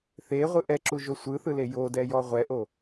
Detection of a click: present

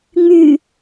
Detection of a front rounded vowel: present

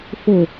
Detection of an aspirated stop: absent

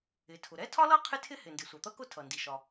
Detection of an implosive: absent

